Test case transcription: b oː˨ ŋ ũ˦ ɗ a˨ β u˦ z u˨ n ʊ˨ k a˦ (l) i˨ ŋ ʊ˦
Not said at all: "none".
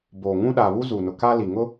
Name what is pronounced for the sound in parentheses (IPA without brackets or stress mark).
l